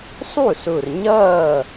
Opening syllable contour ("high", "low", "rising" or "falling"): falling